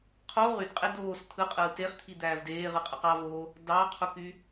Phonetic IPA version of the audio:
qʰ o ʁ y d qʼ e d oː s t̪ʰ ɯ qʼ ɯː t e χ t̪ʰ i d̪ æː v d eː ʁ ɯ qʼ ɯ q ɑ v oː | d ɑ qʰ u k y

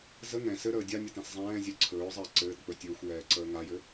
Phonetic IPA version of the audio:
z ə ŋ ɛ̃ s ɘ ɾ əː dʲ a nʲ ɘ t ɛ̃ s zˤ ɛ̃ː zʲ ɛ ǀʰ ɵː zˤ əː ǀ ɘː t k͡p ɵ tʲ ɵː xʷ j ɛː ǀ əː ŋ a j ɘ

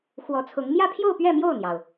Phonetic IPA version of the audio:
x w ɔ˧˥ t͡sʰ ʊ˧˥ ŋ m j ä˥˧ pʰ j o˥˧ ʊ̯ p ɥ ɛ˥˧ m j o˥˩ ʊ̯ n̪ j ɑ˩ ʊ̯

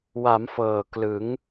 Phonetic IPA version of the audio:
w a˩˦ m f ɤː˨˩ k l ɯ˩˦ ŋ

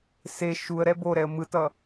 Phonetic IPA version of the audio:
s e ʃ u ə̯ ɾ ɛ b o ɾ ɛ ə̯ m ɯ t ʌ

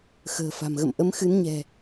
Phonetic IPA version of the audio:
x ə̤ː˨˩ f a̤˨˩ m ɣ ə̰˧˨ m ʔ ə˨˦ m x ɨ˨˦ n ɲ ɛ̤˨˩

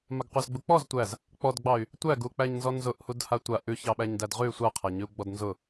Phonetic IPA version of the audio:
m a ɡ qʷ æ z ɡ͡b u k͡p ɔ z tʷ æ z | k͡p ɔ d ɡ͡b ɑ y̯ | tʷ æ ɡ u k͡p æ ɲ n z ɔ n z ʊ ʔ h u d h a tʷ a ʔ ʉ ç ɑ ɓ æ ɲ d æ d ʁ ʉ y̯ sʷ a qʰ a ɲ ʉ u̯ ɡ͡b ɔ d n z ʊ

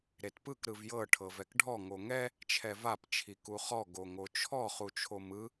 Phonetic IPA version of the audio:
ɾ e t p ɯ k ɾ ɯ v j ɤ ʈʰ ɤ v ɛ k ɖʱ ɔ ŋ o ŋ ɛ | t͡ʃʰ ɛ v a p t͡ʃʰ i k u χ ɔ ɡ o ŋ o t͡ʃʰ ɔ χ u t͡ʃʰ o m ɯ

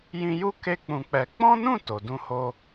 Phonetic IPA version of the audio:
j ĩ˧ j u˦ k e˦ k͡p ũ˧ k͡p ɛ˧ k͡p ɔ̃˦ n ũ˦˨ t o˨ d ũ˧ h o˧

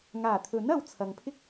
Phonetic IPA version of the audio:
ŋ aː˨˩ t̪ʰ ɵ˨˥ n ɐ˧ w t͡sʰ ɐ˨ ŋ pʰ ɪ˥ k̚

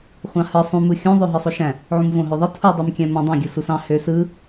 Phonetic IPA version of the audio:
χʷ ɑ̃ h ɯ sˤ ũ m ɯ xʲ ũ ðˤ ø ɦ ɯ sˤ o ʃ æ̃ | ʕ ũ m v õ ɦ ø ðˤ ɯ tʰ u dˤ ø m kʲ æ̃ m õ dˤ õ ɡʲ ɯ s u s ɑ̃ h ø s ɯ

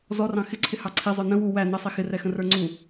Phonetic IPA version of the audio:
z ɔ r ɑ̃ x ɪ ǀʰ ɪ h ɑ ǀʰ i zˤ ə˞ n ə̃ w u w æ n ʌ sˤ i x ɪ r ɛ x ə̃ r ə˞ ŋ͡ǀ u

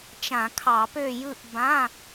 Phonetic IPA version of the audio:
t͡ʃ ã˧˩˧ kʰ ɑ˧˩˧ p ø˥˨ j ɯ˥˨ ʔ b ã˧˥˧

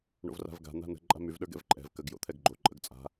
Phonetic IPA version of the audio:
ɳ o̰ v r a̤ v ɡ a̤ n̪ a̤ n ə̤ ǃʼ a̤ m y v ɗ ə˞ ɡ ɛ̰ v ǃʼ ɛ̤ v k ə ɡ j o̰ t̪ʰ ɛ ɡ ɡ͡ǃ o ǃʼ ə ɡ t͡sʼ a̤

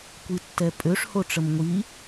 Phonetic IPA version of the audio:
kʷ i tː ɛ pʼ ø ʂ h o ʈ͡ʂ ə m ŋʷ i

